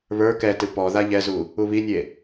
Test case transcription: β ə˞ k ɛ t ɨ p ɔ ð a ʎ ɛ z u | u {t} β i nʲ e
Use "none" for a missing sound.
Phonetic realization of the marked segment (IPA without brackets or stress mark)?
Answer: none